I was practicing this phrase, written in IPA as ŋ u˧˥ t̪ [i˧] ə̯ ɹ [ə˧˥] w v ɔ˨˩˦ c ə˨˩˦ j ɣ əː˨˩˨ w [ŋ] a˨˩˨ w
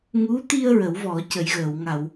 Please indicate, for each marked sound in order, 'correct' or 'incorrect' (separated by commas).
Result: correct, incorrect, correct